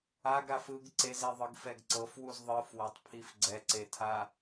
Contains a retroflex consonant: no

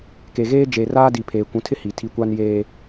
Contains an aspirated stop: yes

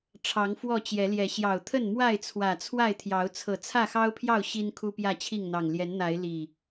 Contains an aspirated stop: yes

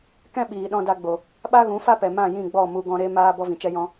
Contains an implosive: yes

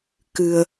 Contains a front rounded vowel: no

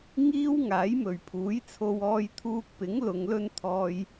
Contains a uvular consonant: no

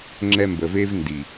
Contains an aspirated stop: no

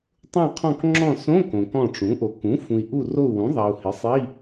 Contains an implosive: no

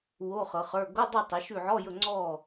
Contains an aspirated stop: no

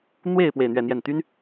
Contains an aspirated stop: no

